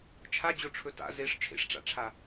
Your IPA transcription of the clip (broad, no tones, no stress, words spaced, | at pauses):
t͡ʃʰad͡ʑoʈ͡ʂʰɵ ta̰ zeʂ t͡ʃʰḛʂʈ͡ʂa̰ʈ͡ʂʰa